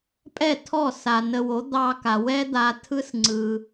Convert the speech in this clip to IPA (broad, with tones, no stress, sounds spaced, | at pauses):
pʼ ɛ˥˩ tʰ ɔ˥˩ s a˩ n ə˧ w o˩˥ d̪ ɑ˧ k a˩ w ɛ˥ d̪ a˧ tʰ ɯ˥ s ŋ͡ǀ ɯ˩